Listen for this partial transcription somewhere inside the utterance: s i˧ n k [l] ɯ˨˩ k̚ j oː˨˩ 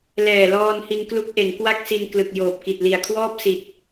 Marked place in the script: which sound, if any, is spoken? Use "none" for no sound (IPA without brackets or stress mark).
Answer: l